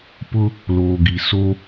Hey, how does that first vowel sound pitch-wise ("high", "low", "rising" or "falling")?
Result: high